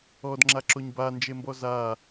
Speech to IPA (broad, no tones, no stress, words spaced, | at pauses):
ɔdŋ͡ǁaǁoɲ band͡ʒembɔ za